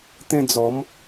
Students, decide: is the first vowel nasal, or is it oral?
nasal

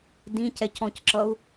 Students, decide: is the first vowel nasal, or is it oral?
nasal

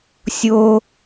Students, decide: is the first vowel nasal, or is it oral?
oral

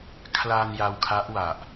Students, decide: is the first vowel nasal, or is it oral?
oral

